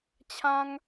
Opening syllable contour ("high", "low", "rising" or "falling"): high